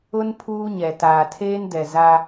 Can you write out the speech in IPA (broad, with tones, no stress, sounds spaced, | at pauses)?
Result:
ʊ˦ n pʰ uː˦ ɲ ɛ˨ t aː˨ tʰ eː˦ n d ɛ˨ z a˦